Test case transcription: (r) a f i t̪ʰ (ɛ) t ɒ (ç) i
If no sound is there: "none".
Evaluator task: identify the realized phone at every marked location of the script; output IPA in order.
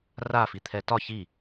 r, ɛ, ç

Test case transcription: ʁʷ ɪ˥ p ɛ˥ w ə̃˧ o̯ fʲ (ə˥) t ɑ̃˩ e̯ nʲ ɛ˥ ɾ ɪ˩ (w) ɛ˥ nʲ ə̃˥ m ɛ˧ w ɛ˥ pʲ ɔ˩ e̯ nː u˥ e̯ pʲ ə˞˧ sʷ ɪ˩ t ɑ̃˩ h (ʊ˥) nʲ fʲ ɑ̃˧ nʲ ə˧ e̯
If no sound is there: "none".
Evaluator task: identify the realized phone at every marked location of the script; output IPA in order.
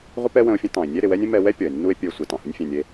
ə̃˥, w, ʊ˥

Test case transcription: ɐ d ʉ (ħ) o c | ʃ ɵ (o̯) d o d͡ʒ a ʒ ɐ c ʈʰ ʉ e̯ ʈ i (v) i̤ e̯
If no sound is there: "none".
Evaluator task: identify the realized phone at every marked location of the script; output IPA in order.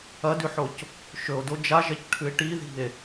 ħ, o̯, ð

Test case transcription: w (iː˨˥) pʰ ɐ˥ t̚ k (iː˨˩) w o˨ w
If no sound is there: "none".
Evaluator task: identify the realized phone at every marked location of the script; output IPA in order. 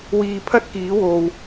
iː˨, iː˨˥

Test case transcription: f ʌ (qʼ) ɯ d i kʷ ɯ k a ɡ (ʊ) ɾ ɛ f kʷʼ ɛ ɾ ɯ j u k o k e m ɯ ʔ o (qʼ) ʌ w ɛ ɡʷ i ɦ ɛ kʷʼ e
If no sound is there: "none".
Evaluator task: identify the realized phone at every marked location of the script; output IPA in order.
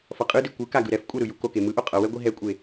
qʼ, ɯ, qʼ

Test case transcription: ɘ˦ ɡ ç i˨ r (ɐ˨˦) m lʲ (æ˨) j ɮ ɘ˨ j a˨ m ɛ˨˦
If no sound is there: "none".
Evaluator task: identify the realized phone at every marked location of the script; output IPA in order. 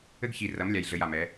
ɐ˨˦, a˨

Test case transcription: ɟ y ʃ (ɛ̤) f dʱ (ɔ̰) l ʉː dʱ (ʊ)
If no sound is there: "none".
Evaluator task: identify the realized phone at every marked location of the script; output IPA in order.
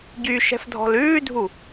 ɛ̤, ɔ̤, u

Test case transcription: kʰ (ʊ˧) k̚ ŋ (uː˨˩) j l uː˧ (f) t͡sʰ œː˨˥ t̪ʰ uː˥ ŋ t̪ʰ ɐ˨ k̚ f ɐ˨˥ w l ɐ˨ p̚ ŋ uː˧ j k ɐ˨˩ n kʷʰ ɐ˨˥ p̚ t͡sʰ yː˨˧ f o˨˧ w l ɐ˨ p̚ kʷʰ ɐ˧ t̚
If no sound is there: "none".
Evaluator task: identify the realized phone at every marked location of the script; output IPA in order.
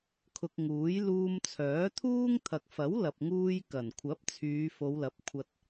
ʊ˧, uː˨˥, m

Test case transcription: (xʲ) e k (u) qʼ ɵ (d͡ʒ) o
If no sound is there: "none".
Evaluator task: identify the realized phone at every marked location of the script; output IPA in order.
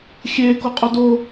xʲ, o, d

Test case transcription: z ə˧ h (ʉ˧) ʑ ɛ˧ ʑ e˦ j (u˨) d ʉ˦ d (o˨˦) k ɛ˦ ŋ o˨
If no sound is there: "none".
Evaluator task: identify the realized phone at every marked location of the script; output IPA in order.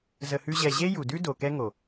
ʉ˦, u˨, o˨

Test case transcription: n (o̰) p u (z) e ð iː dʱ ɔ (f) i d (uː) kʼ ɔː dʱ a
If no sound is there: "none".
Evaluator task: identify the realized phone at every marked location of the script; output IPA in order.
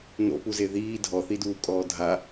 o̰, z, θ, uː

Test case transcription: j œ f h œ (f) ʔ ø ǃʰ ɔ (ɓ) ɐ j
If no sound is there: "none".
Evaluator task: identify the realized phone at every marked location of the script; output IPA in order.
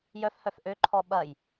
f, ɓ

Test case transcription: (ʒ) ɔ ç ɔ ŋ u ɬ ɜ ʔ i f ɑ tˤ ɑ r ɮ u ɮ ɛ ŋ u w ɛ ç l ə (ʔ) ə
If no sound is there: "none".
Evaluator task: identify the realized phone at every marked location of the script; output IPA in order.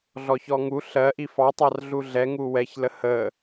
ɮ, h

